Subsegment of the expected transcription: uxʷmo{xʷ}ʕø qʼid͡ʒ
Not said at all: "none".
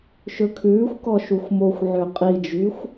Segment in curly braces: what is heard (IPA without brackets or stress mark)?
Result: xʷ